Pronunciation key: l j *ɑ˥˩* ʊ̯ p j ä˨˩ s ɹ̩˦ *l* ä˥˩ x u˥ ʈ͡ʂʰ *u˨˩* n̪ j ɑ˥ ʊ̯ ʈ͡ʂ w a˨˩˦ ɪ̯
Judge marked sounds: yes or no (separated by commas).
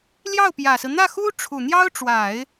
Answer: yes, no, yes